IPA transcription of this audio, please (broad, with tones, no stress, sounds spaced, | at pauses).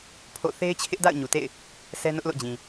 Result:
pʰ o̰˦˨ θ e˦ ɪ̯ t͡ɕʰ ɪ˦ ʔ d a̰˦˨ ʊ̯ ɲ u˨ t ḛ˦˨ ɪ̯ | s ɛ˦ n ʊ˦ ʔ l o̰˦˨ d͡ʑ ĩ˨